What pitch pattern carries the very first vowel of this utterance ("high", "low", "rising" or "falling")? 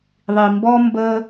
low